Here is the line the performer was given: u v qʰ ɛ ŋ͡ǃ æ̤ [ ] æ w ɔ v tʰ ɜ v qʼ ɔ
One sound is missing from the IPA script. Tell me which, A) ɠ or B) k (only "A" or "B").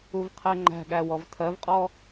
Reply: A